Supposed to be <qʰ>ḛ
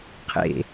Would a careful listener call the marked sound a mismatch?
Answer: no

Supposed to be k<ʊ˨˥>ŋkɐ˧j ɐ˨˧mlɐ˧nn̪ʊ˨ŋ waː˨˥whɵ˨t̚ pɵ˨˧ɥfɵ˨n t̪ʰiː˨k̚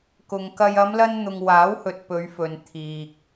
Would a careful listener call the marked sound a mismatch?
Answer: yes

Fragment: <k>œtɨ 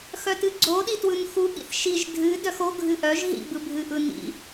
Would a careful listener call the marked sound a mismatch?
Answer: yes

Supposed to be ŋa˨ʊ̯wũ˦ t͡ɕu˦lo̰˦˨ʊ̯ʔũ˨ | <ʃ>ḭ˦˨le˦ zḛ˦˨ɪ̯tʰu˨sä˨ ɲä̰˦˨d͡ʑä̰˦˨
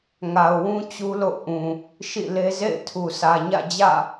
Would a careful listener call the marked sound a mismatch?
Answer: no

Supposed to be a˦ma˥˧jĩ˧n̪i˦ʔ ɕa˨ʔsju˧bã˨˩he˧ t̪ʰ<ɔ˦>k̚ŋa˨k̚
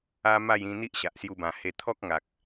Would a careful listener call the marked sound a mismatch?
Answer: no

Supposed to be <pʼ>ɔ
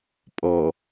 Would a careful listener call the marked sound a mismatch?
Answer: no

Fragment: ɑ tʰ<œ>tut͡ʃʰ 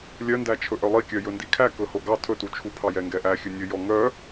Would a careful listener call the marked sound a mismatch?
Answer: yes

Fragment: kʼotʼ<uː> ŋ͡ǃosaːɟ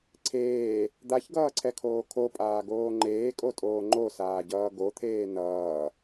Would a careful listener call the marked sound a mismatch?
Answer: yes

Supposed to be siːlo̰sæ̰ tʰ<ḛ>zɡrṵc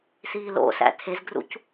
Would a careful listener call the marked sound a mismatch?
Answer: yes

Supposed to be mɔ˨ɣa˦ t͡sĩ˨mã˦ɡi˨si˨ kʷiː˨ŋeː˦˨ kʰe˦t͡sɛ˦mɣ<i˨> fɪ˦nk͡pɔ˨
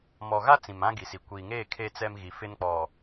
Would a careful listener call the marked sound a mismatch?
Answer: no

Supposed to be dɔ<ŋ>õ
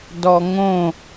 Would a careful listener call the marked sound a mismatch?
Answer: no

